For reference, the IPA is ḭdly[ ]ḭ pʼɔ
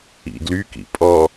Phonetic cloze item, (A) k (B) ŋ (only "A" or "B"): A